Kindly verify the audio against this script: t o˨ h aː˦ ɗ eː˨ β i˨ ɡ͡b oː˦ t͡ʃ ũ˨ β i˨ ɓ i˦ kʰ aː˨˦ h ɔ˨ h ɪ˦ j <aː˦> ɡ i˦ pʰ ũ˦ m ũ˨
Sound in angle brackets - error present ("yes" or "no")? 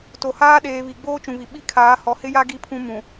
yes